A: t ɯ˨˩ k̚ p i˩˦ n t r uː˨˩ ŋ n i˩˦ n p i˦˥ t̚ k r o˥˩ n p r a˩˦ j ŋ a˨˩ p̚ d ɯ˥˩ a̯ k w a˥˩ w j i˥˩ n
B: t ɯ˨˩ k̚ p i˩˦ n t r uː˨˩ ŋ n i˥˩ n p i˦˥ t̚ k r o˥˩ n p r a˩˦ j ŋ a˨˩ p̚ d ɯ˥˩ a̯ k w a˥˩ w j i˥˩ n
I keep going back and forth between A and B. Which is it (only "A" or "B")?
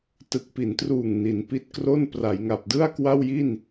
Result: A